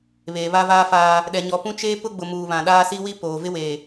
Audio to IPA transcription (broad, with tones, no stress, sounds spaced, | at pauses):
β eː˨ β a˦ v aː˦ f aː˦ | ɗ ɛ˨ ɲ ɔ˨ p ũ˦ t͡ʃ eː˦ p ʊ˦ ɡ͡b ʊ˨ m uː˨ β ã˨ ɗ aː˦ s i˦ w i˦ p oː˨ v ɪ˦ w eː˨